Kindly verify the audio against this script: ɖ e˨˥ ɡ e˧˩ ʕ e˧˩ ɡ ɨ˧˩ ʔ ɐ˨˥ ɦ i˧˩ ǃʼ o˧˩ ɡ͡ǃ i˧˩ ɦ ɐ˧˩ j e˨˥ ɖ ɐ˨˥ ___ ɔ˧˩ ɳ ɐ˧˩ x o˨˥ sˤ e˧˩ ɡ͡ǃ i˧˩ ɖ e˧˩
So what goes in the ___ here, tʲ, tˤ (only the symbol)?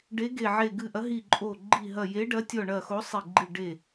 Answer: tʲ